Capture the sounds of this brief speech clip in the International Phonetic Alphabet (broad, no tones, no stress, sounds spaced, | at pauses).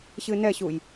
ɕ ɨ n ɛ ɕ u j